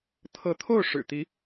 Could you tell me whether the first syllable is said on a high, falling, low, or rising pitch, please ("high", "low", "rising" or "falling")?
rising